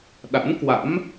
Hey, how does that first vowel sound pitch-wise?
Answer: rising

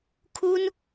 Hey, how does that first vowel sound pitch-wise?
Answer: high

